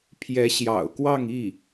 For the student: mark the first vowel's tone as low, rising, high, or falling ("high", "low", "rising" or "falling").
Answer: rising